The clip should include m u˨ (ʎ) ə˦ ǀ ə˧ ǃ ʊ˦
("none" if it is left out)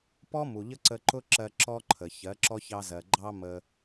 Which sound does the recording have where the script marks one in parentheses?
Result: ʎ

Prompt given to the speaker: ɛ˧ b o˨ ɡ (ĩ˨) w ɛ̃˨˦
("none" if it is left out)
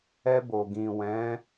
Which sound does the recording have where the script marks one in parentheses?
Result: ĩ˨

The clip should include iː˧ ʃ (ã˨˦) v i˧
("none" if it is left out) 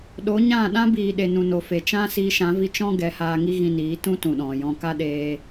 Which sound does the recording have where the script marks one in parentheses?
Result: ã˨˦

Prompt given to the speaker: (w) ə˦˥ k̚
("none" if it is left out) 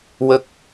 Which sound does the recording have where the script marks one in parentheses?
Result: w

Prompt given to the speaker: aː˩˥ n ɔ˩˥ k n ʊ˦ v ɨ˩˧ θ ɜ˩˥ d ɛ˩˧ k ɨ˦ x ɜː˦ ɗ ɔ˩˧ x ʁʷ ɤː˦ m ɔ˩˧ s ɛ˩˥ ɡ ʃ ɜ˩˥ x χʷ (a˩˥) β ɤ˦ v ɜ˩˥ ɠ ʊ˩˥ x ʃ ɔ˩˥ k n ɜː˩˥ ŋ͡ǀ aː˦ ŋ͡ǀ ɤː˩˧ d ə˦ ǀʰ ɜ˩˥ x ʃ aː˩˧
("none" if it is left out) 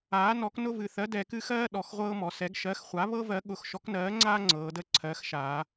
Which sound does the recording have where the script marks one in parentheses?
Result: a˩˥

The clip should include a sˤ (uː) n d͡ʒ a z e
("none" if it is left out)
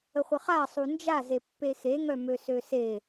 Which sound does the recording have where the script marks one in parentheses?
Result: u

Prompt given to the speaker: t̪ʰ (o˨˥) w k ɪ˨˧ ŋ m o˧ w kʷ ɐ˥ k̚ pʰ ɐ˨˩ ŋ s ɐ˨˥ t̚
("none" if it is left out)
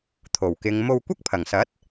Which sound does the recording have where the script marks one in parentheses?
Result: o˨˩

